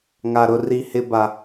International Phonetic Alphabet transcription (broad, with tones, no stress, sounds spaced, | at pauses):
ŋ a˨ ɾ ʊ˨ r i˨ h ɪ˨ b a˨